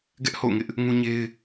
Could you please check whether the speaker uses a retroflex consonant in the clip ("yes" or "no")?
no